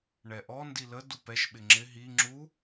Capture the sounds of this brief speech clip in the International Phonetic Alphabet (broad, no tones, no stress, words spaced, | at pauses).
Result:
ɳɛʔɔ ndilə dupɛʃ ɓɪŋ͡ǁɪ ɦi ŋ͡ǁu